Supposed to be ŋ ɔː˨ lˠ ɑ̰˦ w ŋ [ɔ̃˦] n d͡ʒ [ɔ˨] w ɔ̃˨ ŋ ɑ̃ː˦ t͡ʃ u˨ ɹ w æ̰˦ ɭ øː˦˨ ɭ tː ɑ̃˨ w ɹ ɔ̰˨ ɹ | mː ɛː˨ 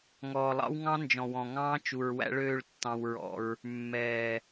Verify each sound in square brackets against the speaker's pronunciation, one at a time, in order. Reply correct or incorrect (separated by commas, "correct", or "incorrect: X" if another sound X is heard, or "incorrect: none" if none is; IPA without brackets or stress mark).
incorrect: ɑ̃˦, incorrect: ɔ̃˨